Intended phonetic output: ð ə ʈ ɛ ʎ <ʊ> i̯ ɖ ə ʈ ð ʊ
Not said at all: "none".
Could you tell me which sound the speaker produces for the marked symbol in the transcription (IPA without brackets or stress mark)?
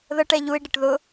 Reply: u